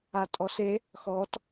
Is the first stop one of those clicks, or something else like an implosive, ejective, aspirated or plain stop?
ejective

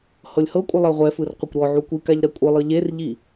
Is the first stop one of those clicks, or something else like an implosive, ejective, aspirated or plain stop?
ejective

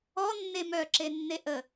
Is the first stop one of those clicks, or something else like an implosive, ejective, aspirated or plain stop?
click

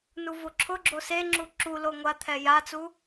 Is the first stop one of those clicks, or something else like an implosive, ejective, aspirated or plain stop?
click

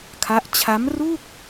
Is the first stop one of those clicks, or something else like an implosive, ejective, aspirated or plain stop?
aspirated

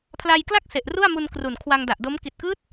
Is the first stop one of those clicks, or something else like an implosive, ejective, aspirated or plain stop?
aspirated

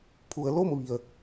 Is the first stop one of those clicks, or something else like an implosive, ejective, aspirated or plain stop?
aspirated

